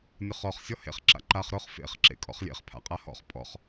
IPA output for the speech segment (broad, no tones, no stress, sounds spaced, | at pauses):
nʲ ʊ χ ɔ χ sʲ ɔ h ḛ χ ǁ a̰ ǃ a χ ɾ ʊ χ f ḛ χ ǁ ḛ kʼ ɔ̰ χ lʲ ḛ χ pʰ a̰ qʼ a h ɔ̰ χ pʼ ɔ̰ χ